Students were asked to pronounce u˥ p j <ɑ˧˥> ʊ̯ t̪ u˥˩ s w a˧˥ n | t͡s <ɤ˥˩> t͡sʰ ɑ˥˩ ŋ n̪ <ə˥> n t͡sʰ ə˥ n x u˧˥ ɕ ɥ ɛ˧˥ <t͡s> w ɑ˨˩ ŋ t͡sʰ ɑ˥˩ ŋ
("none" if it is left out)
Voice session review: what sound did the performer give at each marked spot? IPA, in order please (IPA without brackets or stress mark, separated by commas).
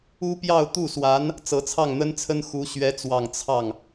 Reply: ɑ˥˧, ɤ˧˥, ə˥, t͡s